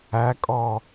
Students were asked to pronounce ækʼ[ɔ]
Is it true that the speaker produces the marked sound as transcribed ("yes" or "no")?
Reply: yes